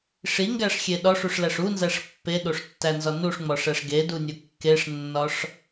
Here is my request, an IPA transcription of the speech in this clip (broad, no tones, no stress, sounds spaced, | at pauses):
ʂ i ŋ ɡ æ ʂ xʲ e ɗ ɒ ʂ u ʂ l æ ʂ u n z æ ʂ pː e ɗ o ʂ tː æ n z ɒ n u ʂ ŋ͡m ɒ ʂ æ ʂ ɡ e d u nʲ o kː e ʂ nː ɒ ʂ